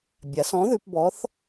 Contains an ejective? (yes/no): no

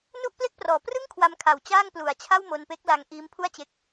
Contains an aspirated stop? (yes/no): yes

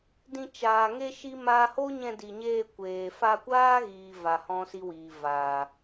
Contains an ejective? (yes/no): no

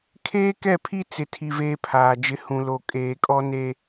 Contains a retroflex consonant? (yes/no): no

